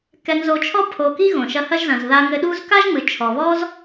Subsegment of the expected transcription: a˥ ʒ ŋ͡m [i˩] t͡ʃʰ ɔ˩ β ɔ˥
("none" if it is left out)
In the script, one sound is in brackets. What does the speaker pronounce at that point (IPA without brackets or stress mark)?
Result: ɨ˩